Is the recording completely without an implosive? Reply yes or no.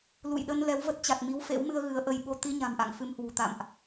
no